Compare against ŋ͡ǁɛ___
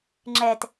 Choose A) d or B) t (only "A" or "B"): B